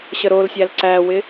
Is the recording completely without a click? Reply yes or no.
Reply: no